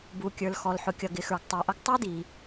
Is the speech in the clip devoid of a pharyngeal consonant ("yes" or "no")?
no